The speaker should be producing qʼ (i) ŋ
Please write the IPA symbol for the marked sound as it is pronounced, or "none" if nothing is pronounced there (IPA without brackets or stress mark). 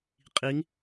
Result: i